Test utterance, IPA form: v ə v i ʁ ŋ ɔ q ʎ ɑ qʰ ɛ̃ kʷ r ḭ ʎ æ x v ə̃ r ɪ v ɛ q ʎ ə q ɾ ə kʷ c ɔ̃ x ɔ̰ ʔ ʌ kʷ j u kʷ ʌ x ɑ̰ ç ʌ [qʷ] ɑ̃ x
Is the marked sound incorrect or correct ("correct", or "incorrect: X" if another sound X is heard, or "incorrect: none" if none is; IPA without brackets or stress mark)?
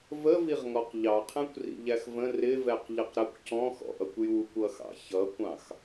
incorrect: kʷ